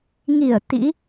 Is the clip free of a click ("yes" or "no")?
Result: yes